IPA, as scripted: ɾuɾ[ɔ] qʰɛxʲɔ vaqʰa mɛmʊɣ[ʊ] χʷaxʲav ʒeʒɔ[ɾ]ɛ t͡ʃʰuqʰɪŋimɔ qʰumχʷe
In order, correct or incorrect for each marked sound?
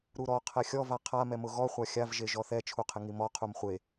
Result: correct, incorrect: ɔ, incorrect: θ

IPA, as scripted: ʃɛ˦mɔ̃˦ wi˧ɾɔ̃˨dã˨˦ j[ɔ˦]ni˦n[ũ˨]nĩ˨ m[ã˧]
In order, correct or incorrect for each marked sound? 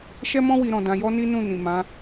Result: correct, incorrect: ũ˦˨, incorrect: ã˨˦

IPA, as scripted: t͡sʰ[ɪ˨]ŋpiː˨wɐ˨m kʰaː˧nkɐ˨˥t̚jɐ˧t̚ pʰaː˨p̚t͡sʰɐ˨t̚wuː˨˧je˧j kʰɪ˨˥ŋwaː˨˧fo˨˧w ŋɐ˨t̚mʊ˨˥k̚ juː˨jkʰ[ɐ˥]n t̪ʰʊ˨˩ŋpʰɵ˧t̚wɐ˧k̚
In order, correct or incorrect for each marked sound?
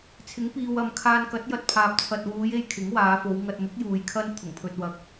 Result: incorrect: ɪ˨˥, correct

